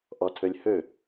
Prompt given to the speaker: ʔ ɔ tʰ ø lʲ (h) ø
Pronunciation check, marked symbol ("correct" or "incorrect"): correct